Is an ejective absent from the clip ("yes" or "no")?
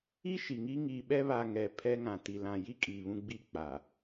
no